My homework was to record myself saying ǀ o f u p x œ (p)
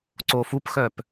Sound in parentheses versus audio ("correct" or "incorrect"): correct